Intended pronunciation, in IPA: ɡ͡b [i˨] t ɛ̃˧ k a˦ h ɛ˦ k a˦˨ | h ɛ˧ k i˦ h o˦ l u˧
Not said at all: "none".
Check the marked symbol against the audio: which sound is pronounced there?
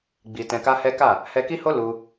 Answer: i˧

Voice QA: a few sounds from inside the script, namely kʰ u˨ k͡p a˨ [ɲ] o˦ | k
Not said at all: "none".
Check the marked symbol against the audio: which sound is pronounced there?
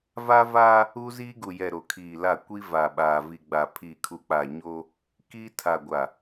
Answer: ɲ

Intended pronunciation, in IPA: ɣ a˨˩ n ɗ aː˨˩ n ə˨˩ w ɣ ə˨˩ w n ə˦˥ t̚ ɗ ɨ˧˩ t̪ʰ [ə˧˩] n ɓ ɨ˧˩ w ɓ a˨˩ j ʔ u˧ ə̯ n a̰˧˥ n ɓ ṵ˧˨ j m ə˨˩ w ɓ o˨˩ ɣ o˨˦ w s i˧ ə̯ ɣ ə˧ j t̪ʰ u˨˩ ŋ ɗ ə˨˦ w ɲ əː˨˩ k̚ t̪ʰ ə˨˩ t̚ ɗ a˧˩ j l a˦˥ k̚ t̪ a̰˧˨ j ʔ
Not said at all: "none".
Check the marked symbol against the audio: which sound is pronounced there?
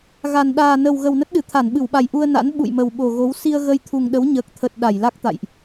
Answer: a˧˩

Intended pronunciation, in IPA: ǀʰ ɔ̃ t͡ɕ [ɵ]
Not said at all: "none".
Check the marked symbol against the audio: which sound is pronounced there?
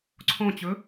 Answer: ɵ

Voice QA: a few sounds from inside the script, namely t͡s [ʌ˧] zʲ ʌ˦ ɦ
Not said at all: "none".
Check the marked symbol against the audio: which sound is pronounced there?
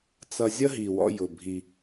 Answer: ʌ˧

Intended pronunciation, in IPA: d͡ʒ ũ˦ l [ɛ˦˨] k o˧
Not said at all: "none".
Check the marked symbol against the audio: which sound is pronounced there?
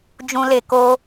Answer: e˦˨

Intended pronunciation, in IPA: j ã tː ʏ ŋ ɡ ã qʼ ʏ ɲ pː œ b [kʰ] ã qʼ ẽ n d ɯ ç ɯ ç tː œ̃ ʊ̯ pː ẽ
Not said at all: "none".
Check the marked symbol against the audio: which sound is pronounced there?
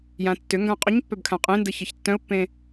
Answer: kʰ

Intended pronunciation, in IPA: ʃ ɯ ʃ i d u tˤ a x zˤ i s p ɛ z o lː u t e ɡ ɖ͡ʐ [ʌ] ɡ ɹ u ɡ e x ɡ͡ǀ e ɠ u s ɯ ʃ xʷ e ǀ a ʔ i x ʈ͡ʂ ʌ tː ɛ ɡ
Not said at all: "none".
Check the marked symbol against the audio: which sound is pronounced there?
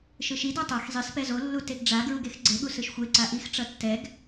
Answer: a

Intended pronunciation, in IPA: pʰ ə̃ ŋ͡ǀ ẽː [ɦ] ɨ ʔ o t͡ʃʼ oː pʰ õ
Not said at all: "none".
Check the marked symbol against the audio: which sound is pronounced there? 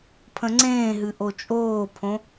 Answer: ɦ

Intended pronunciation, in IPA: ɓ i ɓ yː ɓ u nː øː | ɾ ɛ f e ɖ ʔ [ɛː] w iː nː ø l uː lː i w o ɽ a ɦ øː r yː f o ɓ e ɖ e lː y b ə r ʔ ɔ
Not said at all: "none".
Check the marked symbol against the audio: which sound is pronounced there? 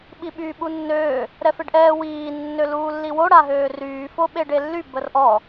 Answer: ɛː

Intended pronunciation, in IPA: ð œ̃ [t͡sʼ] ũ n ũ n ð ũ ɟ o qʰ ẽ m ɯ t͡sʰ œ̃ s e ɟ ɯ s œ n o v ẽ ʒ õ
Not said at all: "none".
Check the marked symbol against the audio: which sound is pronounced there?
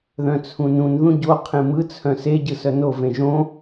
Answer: t͡sʰ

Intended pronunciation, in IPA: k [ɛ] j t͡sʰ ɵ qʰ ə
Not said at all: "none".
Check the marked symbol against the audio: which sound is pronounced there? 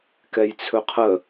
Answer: ɛ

